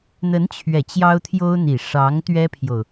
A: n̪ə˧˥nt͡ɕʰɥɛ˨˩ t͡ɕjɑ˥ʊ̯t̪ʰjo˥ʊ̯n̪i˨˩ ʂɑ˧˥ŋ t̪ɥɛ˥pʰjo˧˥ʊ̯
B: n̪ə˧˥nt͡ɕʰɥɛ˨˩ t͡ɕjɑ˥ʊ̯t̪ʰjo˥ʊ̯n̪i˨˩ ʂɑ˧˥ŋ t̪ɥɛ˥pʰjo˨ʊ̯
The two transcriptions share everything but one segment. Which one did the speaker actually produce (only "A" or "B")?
B